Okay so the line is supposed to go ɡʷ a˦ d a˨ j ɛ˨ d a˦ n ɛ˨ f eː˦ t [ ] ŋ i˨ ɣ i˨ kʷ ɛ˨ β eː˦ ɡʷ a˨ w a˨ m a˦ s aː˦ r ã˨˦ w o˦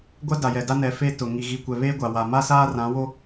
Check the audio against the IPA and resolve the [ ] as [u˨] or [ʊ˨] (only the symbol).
ʊ˨